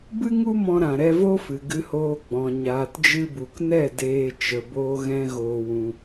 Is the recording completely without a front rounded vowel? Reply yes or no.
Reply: yes